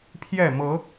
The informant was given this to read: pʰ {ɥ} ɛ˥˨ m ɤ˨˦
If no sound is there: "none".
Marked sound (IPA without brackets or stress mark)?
j